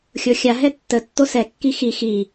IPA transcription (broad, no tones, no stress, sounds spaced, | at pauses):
xʲ o xʲ a ɦ ɛ tː ə tː o s ɛ kː i x i x i